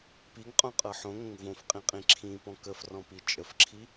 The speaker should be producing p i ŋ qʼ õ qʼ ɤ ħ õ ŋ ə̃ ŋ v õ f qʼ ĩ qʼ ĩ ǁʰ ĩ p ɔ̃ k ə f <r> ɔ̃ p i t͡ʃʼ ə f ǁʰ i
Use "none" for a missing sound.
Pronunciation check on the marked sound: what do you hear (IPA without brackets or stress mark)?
r